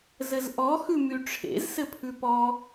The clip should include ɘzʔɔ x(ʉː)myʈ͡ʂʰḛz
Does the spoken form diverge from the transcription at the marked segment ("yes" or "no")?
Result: yes